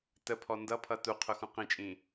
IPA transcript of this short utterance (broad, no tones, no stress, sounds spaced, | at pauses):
t ə pʰ ɔ n d ʌ pʰ ʌ t u qʰ ʊ x ũ q ĩ t͡ʃʼ ĩ